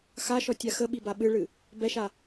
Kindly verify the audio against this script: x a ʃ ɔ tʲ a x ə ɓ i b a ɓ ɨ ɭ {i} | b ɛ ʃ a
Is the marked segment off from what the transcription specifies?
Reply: yes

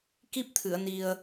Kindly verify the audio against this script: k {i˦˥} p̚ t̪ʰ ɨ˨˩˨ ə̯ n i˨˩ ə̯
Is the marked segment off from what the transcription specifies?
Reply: no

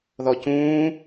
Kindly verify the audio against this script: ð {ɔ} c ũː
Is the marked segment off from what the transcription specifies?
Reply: no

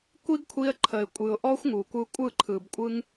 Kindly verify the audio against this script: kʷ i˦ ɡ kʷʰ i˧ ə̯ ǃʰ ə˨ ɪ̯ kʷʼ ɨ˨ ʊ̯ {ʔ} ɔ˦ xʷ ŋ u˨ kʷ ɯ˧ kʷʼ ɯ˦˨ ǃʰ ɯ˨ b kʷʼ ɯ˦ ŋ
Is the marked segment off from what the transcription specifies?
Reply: no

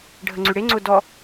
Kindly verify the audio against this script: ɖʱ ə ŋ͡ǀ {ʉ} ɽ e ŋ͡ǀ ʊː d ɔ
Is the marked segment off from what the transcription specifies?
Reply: no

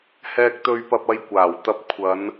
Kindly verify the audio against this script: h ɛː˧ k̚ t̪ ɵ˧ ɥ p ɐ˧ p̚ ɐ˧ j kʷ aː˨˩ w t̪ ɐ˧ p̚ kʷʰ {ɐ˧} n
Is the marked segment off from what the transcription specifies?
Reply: yes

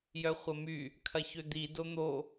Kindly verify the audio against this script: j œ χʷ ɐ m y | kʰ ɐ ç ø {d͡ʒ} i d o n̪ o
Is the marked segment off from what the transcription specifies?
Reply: yes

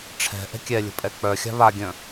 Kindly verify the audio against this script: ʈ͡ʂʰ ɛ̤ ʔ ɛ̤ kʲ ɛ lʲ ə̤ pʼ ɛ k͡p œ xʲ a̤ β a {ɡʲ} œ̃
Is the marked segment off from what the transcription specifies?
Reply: no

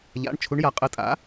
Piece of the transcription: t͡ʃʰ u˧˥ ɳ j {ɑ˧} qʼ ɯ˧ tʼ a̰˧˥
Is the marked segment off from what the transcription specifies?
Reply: yes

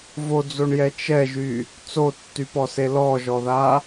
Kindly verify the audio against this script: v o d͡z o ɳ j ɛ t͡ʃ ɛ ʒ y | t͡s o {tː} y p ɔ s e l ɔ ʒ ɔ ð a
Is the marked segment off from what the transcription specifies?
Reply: no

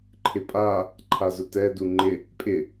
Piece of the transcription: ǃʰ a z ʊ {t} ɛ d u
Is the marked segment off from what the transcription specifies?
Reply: no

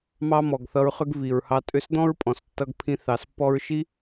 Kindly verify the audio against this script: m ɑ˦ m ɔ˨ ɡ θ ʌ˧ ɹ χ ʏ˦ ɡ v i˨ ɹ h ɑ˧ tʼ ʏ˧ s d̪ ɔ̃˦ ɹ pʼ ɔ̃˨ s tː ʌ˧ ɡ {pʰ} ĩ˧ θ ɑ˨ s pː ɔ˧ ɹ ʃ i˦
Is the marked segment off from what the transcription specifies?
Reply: no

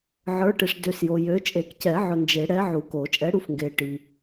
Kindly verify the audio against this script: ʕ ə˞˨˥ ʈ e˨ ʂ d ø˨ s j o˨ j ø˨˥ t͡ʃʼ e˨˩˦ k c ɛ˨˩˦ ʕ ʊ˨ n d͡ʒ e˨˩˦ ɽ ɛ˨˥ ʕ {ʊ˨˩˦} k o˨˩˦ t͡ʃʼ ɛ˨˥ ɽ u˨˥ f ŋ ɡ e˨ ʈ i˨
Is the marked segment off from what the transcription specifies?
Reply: yes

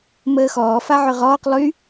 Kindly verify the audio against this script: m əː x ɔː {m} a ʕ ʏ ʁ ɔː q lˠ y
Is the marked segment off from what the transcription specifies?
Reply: yes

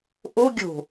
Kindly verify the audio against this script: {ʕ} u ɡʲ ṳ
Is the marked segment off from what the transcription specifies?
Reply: yes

